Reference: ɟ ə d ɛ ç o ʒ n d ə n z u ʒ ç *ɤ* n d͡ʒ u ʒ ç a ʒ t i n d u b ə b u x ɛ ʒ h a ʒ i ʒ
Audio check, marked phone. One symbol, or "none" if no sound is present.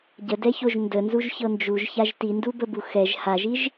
ɤ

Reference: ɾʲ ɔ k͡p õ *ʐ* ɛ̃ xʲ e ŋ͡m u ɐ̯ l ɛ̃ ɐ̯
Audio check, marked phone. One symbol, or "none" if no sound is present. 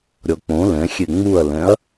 l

